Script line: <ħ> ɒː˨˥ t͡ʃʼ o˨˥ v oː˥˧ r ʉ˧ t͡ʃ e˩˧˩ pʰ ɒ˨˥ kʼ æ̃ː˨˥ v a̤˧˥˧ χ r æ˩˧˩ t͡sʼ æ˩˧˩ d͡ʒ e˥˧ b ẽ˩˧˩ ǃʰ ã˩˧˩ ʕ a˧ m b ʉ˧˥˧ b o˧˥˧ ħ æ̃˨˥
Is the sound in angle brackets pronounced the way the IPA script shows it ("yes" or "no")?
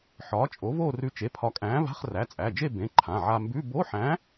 yes